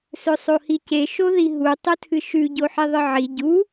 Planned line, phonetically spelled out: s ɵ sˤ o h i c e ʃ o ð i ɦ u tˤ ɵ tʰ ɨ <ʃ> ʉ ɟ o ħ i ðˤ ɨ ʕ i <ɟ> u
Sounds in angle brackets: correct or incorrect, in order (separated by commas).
correct, correct